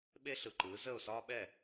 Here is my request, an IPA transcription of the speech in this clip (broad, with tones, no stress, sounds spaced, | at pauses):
ɓ e˥ ɬ ɯ˨ ǃ ɯː˩˥ z ə˥˩ ʊ̯ s ɒː˥ ɓ ɛ˥˩